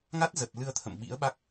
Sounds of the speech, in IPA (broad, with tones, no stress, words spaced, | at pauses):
ŋa˦˥t̚zə˨˩t̚ lɨ˧ə̯t̪ʰə̰˧˨m ɓḭ˧˥ə̯ɓa˦˥k̚